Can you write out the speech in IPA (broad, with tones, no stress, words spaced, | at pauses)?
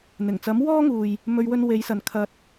n̪ɪ˨˩ŋt͡sɐ˨˥m wɔː˥ŋuː˨j | mɵ˧ɥwɵ˧nwe˨˧j sɐ˨nkʰɐ˧t̚